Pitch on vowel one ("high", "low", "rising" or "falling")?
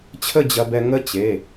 falling